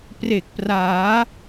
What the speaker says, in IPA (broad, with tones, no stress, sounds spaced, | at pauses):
p r e˨˩ k̚ p r aː˩˦